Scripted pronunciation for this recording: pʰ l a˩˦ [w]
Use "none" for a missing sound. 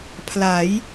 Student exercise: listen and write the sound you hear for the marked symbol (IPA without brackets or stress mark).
j